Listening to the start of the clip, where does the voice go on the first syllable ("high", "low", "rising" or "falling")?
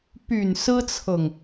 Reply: low